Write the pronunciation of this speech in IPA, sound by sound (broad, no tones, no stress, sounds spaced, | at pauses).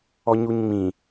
ɔ ɲ u ɲ ŋ͡m ĩ